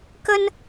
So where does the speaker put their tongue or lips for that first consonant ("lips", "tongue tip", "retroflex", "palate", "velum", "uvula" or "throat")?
velum